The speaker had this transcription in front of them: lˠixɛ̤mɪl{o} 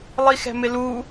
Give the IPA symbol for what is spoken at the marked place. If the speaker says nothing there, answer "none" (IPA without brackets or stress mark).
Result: u